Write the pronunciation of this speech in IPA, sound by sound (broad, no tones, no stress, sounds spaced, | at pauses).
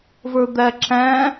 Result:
v ə˞ d̪ æ ǁ æ̃